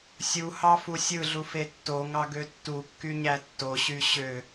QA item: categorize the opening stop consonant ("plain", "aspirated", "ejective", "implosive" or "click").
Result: plain